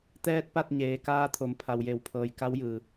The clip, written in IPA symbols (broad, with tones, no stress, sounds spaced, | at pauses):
t̪ ɛː˧ t̚ p a˥˨ t̚ ɲ eː˩ k aː˧ t̪ʰ o˩˧ m pʰ a˩ w j e˩ w pʰ ɤː˩ j k a˧˥ w j ɯː˩